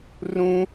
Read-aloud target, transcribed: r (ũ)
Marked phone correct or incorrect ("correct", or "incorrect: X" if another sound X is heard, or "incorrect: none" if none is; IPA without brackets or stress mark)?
correct